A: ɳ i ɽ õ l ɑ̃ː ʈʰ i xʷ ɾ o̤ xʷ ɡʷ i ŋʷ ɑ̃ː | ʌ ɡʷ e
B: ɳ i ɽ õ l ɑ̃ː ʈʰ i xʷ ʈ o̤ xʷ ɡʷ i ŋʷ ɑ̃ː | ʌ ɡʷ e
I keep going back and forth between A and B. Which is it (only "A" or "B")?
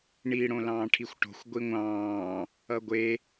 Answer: B